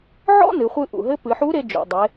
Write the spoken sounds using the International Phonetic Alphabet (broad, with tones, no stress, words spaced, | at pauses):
ʕɔ̰˥nɨ˩˧χʷɨ˧ ʔṵ˩ɦɘ˧˥ pɨ˩˧ħu˧˥ɾe˧ d͡ʒo̰˩ dˤe˩˧